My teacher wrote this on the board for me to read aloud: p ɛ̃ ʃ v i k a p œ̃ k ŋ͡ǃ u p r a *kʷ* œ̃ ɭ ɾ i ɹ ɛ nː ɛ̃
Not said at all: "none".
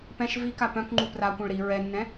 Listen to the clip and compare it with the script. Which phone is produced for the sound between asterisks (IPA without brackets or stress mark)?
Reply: kʷ